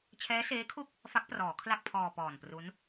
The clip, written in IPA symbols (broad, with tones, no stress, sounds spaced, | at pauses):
t͡ɕʰ ɛː˦˥ s eː˦˥ kʰ u˥˩ k̚ | f a˦˥ k̚ p r ɔː˩˦ kʰ l a˥˩ k̚ pʰ ɔː˧ p ɔː˨˩ n p r u˦˥ n